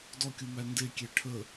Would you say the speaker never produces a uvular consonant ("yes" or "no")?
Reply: yes